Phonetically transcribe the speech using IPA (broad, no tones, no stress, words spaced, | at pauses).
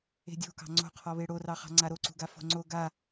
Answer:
e̤dʲo̤kɑ̤ ŋ͡ǀo̤qʰɔβe ɽorɑχɑ̤ ŋ͡ǀaɾoǀṳɡa fo̤ŋ͡ǀo ɡa